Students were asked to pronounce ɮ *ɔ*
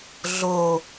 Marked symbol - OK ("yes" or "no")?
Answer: no